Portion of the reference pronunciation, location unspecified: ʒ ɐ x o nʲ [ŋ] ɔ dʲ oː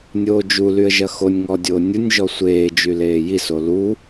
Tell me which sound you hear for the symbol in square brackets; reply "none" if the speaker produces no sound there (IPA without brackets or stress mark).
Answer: ŋ